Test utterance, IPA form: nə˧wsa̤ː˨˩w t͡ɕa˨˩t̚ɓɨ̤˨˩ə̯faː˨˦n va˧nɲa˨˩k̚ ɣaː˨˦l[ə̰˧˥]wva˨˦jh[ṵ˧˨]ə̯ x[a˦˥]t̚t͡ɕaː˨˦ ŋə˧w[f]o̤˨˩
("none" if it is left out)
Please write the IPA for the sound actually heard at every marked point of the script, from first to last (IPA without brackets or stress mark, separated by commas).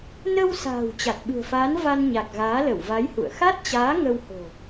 ə˧˩, ṵ˧˨, a˦˥, h